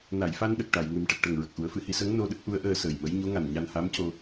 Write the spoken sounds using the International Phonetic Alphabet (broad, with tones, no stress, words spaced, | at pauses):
na˨˩˨jfa˧nɗə˨˩k̚ ʈa˨˩˨jŋɨ˨˩˦m ʈə˨˩k̚ʈə˨˩ŋ ɹə˨˩k̚ʔu˨˩˦ə̯fɨ˨˩˨hi˧ sə˧˥ŋ no˧ɗə˦˥k̚ ʔu˧˥ə̯ʔəː˧səː˨˩jmə˧˥j ɲo˧˥ŋa˨˩n ɲa˧nha˧˥mco˧